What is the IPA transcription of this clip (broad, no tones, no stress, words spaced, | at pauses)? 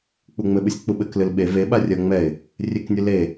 k͡puŋ͡mɘɓɨsʲ k͡puɓɘklɨl ɓe veɓa rʲɐ ŋ͡mɛɪ̯ | rʲeknʲɨ le